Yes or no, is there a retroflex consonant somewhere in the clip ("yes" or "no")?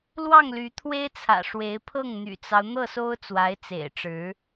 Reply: yes